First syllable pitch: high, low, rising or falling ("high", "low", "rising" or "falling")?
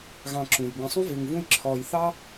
low